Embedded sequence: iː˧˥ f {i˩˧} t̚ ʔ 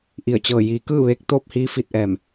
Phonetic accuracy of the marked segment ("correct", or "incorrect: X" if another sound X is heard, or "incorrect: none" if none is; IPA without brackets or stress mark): incorrect: i˧